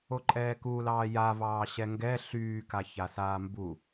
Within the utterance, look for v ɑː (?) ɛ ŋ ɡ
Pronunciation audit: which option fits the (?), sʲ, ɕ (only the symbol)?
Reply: ɕ